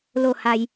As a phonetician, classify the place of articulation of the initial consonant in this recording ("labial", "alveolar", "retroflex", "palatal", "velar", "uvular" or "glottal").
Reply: alveolar